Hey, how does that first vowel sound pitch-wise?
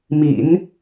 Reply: low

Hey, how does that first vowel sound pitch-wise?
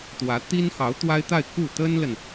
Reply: rising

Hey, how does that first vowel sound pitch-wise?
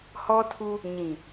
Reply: high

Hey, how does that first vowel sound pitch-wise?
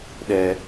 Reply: high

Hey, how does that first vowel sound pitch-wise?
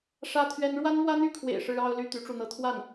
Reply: high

